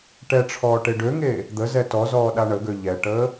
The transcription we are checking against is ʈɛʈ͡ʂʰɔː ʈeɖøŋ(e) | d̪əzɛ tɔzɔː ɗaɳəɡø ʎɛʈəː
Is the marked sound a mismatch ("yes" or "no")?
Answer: yes